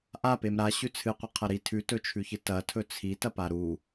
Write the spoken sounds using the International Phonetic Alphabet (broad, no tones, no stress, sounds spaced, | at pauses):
ʔ a p e m ɾ a ɕ ʉ t͡sʰ ɨ qʷ ɨ qʰ ɐ ɾ i tʰ ʉ t ɵ t͡ʃʰ ʉ ç ɨ t ɐ tʰ ɵ t͡sʰ i t ɐ p a ɾ u